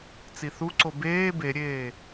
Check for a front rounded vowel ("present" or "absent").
absent